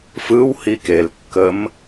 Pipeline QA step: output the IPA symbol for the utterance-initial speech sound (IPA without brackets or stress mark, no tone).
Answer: f